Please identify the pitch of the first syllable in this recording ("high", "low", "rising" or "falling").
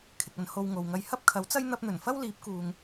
low